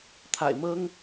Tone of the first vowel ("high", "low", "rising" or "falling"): low